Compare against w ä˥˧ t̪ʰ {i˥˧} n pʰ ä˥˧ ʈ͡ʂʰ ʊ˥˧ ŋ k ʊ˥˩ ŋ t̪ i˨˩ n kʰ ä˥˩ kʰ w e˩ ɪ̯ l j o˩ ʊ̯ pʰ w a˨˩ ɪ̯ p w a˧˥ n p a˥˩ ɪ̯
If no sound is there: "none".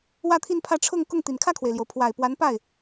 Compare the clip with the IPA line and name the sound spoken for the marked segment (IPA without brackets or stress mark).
i˥˧